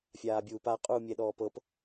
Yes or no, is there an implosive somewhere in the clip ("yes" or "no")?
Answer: yes